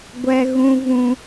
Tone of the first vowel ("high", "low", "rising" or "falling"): high